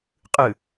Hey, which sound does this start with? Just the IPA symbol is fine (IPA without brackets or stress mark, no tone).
qʼ